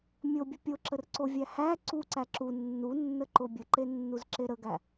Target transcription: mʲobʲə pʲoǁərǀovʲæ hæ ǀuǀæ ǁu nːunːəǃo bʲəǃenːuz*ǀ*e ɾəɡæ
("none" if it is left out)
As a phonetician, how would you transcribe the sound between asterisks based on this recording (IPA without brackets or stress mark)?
ǁ